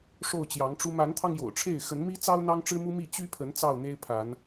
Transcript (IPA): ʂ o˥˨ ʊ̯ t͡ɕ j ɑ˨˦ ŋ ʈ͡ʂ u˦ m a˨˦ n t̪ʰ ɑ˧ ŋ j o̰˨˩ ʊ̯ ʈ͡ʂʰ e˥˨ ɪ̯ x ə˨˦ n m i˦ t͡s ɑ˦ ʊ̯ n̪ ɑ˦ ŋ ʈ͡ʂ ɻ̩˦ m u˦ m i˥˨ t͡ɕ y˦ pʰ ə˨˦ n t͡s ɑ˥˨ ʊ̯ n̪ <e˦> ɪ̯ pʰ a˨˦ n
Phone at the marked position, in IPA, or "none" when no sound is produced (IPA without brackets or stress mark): e˦